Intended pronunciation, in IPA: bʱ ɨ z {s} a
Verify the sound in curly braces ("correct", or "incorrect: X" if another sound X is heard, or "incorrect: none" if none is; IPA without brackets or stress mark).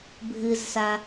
correct